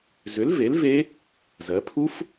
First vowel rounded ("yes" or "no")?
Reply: yes